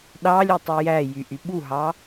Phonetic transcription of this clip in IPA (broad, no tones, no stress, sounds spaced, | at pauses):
ɗ ɑ lʲ ø tˤ u j æ j y ʔ y ɓ u ɦ ɑ